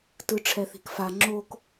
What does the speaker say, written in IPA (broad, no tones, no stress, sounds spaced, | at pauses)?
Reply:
t ɯ ʈ͡ʂʰ ɛ θ i̤ k f a ŋ͡ǁ o k